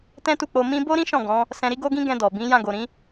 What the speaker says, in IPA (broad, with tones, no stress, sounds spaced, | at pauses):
t ɛ̃˦ t u˦˨ k͡p o˧ m ĩ˧ b o˦ ɾ ĩ˦ ʃ ɔ̃˦˨ ɡ ɔ̃˨˦ | s ɛ̃˧ ɾ i˦ ɡ o˦ ɡ ĩ˦ ɡ ɛ̃˧ d ɔ˨ b ĩ˨˦ j ã˦˨ ɡ o˨ ɾ ĩ˨˦